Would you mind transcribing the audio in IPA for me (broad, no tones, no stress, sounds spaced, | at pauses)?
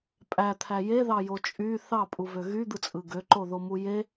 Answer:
pʼ æ t̪ʰ æ j e ð ɑ j o t͡ʃʼ y θ ɑ pʼ u v ø ɣ y d̪ ɯ t͡sʼ ɯ ɡ ø ǃ o ð o m u j e